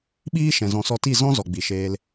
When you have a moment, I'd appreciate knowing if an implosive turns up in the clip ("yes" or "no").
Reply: yes